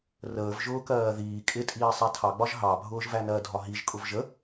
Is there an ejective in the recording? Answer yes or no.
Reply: yes